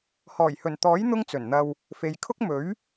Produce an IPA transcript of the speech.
hɔː˨˩jhɵ˨˩nt̪ɔː˨˥j n̪ʊ˥ŋt͡sɵ˨˩nn̪ɐ˧w | fe˨jkʰʊ˥k̚ mɵ˨˥ɥ

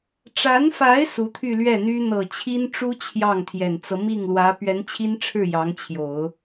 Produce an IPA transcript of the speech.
ʈ͡ʂa˧˥nfa˧˥ɪ̯ su˧˥t̪ʰy˥˧lɥɛ˥˩n̪y˥ n̪ɤ˨˩t͡ɕʰi˥nʈ͡ʂu˥ t͡ɕʰjɑ˥˩ŋt̪ʰjɛ˨˩nt͡sɤ˦ mi˥˩ŋlwä˧˥ pɥɛ˧˥nt͡ɕʰi˥nʈ͡ʂʰɻ̩˥˩ jɑ˧˥ŋt͡ɕʰjo˨˩˦ʊ̯

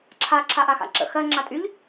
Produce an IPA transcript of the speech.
ǁʰa ǁʰaʔaxa̰ǁə̰ xɜ ŋ͡ǁatʼyʎ

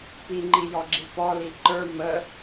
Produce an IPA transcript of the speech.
piŋ͡ǃijɔɡ͡ǁi pɔli ǃə˞ mə

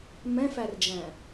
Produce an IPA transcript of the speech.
mɛ̃færd͡ʒæ̃

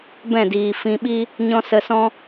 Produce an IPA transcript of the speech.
bɛ̃˦˨diː˨ fĩ˨ɓi˧ | ɲɔ̃˦sə˧sɔ̃˦

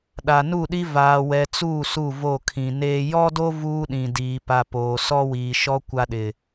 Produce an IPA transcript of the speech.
ɗa˨nu˦˨ɗi˦ vaː˨wɛ˨t͡suː˦˨ su˦˨vo˦˨kʰĩ˨neː˦ jɔ˦do˦ vuː˦ɗĩ˨diː˨ pa˦ poː˨ sɔ˦wiː˨ʃɔ˦ kʷa˦ɗɪ˨

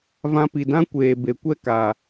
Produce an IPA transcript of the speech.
vã˧pi˨dã˦kʷeː˨ be˨ kʷɛ˦ kaː˨

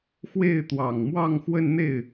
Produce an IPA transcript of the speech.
xwe˥˩ɪ̯t̪wɑ˨˩ŋmwɑ˥˧ŋ xwə˥˧nn̪e˥˩ɪ̯

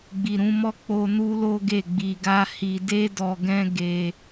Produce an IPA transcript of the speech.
ɡ͡bi˨ɾũ˧mɔ˦ k͡po˧ nu˦lo˦ɡe˦˨ ɡ͡bi˧ɡa˦ hi˧de˦dɔ˧ɡɛ̃˦ ɡe˦

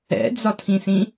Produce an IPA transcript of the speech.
ɛ̰d͡zɒtʰĩsĩ

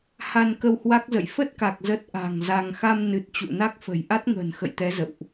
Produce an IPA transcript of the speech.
ha˧nkə˧whwa˦˥k̚ zə̰˧˨j fə˦˥t̚ka˨˩k̚ zə˦˥t̚ʔa̤˨˩ŋza˧ŋ xa˧mnɨ˨˩t̚ t͡ɕṵ˧˨na˦˥k̚fə̤˨˩j ʔa˦˥t̚ŋə̤ː˨˩nxə̰˧˨jt̪ɛ˨˦ zə̰˧˨wʔ

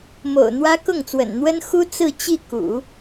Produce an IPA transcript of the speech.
mo̰˨˩ʊ̯n̪wä˥ kʊ˥˩ŋt͡swə̰˨˩n n̪wə˥nxu˥ t͡sɹ̩˥˧t͡ɕi˥˩kṵ˨˩˦

